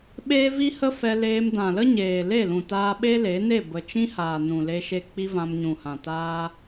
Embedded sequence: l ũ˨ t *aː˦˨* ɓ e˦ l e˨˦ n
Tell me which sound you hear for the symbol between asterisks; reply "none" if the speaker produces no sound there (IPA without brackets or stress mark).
aː˧